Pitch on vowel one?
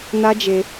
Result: high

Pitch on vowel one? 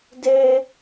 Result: high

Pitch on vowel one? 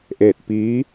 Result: falling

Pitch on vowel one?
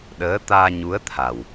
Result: rising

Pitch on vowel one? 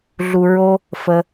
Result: low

